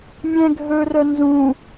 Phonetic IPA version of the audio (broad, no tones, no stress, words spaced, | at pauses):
mʲɛ̃ ɡʱɵrœ nzũ